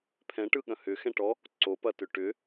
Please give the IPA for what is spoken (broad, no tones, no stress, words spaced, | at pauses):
pʰɛ̃ʈɯɠɐ̃ hʏxɛ̃ʈɔ | ǀopɐtʏ ʈʏ